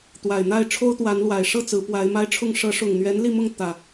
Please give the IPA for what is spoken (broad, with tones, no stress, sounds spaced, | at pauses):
t̪ w a˨˩ ɪ̯ n̪ a˥˨ ɪ̯ ʈ͡ʂʰ o˦ ʊ̯ t̪ w a˨˦ n l w a˨˩ ɪ̯ ʂ ɤ˥˨ t͡s ɹ̩˨˦ p w a˨˦ ɪ̯ m a˦ ɪ̯ ʈ͡ʂʰ ʊ˥˨ ŋ ʂ ɤ˨˦ ʂ ʊ˨˩ ŋ n̪ ɥ ɛ˨˦ n l i˥˨ m ʊ˥˨ ŋ t̪ ä˨˩